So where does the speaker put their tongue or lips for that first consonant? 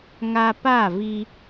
velum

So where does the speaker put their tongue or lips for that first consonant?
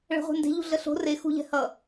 retroflex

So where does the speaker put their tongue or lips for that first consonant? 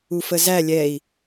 lips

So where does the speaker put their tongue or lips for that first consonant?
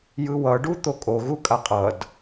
palate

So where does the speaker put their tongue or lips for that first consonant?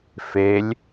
lips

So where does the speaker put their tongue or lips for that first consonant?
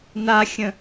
tongue tip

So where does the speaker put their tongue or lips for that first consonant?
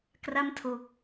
velum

